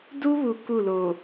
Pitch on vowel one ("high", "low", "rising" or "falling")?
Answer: high